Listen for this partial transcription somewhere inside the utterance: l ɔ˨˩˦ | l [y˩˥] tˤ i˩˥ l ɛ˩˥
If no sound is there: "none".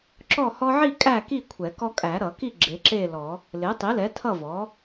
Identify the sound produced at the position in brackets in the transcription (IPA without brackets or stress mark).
e˩˥